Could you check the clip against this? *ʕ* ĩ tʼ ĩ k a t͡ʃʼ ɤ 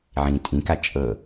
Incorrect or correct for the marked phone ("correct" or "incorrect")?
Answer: correct